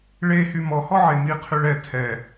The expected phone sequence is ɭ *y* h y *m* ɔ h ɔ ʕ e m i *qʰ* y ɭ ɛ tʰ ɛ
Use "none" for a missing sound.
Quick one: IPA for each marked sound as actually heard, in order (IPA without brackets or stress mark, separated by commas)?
e, m, qʰ